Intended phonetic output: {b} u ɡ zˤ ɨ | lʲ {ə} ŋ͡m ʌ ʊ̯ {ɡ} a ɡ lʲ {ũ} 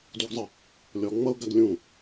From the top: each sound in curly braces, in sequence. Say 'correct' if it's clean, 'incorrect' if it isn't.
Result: incorrect, incorrect, correct, correct

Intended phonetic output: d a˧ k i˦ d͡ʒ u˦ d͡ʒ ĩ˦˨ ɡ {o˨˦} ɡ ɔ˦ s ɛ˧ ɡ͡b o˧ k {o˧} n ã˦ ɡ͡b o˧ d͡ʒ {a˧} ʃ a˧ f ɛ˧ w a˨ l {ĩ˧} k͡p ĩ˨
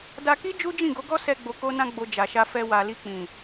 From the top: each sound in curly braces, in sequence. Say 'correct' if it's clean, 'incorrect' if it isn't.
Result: correct, incorrect, incorrect, incorrect

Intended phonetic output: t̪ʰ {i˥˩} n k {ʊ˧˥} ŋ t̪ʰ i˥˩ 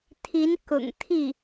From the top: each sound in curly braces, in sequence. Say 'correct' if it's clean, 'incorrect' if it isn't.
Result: incorrect, incorrect

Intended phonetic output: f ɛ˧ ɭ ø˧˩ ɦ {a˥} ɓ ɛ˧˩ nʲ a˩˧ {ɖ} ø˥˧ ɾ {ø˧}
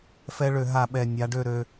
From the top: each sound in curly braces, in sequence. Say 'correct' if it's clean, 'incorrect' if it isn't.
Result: incorrect, correct, correct

